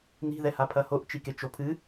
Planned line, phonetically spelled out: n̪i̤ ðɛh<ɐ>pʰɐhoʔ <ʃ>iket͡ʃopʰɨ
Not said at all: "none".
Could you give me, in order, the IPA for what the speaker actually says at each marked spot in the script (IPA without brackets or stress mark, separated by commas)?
a, t͡ʃ